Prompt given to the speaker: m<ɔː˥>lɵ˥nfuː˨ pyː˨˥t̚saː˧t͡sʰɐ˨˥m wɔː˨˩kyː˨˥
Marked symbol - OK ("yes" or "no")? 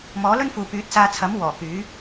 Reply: no